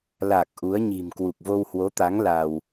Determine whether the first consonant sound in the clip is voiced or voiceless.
voiced